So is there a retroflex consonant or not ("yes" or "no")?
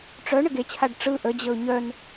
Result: yes